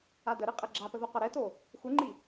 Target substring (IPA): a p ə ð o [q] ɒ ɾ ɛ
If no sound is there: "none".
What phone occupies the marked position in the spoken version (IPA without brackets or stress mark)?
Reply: q